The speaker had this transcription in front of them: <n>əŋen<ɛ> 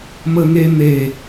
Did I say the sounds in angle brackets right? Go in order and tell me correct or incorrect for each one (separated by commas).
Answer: incorrect, incorrect